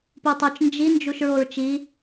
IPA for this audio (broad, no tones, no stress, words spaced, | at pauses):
putˤot͡ʃ nd͡ʒi nd͡ʒuʃɹoɹt͡ʃi